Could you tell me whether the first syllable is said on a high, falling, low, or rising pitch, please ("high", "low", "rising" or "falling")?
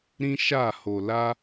high